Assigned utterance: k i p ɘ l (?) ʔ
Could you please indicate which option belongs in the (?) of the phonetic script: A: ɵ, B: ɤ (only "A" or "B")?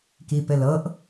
B